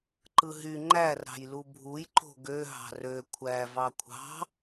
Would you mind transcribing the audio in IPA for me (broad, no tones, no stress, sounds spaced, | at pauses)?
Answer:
ǃ ɯ ɦ y ŋ͡ǃ æ r ɾ ɑ̤ j l u bʱ u j ǃ o̤ ɡ ø ɦ ɑ̤ r ø kʷʰ æ v ɑ kʷʰ ɑ̤